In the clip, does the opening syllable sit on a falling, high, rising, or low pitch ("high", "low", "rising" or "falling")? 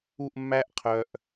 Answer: falling